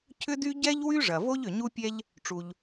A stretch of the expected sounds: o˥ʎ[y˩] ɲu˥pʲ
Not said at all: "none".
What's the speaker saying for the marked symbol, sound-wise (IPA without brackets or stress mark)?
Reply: ʏ˩